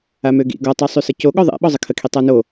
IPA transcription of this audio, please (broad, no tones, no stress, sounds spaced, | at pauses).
a m ø ɡ ḭ ɡ ɔ tˤ y sˤ y s ə c o ɠ ɔ ðˤ ḛ ɓ ɔ zˤ ə kʰ ə kʰ i tˤ a n o